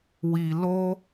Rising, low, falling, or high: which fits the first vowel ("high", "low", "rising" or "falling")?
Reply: low